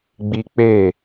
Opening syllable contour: high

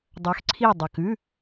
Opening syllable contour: rising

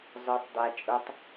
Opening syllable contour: low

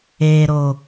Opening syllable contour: low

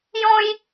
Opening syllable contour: high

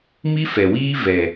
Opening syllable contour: high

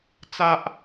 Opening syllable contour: high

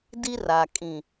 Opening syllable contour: high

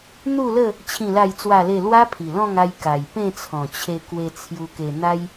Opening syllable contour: falling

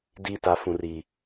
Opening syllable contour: low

